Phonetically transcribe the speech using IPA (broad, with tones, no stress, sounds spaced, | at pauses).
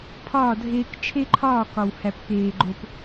pʰ ɒː˦˨ dʱ eː˦ k t͡ʃʰ e˦ ǃʰ ɒː˦˨ k ɒ˨ w h æ˨ p k eː˨ ɡ͡ǃ o˨ p